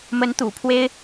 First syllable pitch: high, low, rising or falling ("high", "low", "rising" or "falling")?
rising